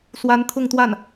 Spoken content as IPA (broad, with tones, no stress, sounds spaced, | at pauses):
s w a˧˥ n t̪ʰ ʊ˥˧ ŋ t̪ w a˥˩ n